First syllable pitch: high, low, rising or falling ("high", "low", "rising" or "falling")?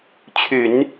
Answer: low